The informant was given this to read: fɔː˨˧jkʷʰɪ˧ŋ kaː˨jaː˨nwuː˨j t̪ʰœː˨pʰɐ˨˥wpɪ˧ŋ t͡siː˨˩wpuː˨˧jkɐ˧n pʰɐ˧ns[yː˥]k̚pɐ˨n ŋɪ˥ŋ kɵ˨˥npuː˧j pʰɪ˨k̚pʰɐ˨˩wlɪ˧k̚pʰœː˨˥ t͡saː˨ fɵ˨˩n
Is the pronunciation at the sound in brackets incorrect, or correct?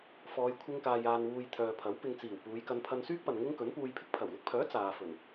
correct